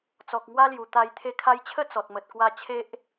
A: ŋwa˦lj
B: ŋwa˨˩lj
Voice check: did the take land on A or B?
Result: A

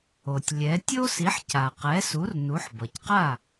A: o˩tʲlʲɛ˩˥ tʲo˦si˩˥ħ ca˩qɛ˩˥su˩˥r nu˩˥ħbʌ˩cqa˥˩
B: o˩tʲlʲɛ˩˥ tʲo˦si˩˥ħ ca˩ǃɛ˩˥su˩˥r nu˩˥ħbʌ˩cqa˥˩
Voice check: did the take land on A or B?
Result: A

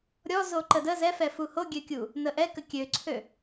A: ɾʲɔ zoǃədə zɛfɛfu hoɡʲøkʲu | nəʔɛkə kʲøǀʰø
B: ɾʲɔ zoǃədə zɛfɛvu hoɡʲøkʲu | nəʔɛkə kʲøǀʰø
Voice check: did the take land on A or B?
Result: A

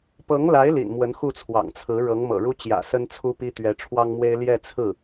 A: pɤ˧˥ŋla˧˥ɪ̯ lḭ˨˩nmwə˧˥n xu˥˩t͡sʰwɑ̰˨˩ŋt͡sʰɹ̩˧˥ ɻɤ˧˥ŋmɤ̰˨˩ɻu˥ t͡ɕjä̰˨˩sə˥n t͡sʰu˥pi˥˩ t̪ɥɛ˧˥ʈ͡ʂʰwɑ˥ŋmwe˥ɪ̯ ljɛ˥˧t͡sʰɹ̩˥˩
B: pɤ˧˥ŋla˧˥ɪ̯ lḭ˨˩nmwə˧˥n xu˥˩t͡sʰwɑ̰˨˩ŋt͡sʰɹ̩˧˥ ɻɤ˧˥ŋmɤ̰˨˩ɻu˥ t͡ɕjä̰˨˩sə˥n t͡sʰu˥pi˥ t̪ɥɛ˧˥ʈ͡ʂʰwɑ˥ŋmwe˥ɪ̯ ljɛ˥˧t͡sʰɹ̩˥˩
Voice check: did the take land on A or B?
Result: B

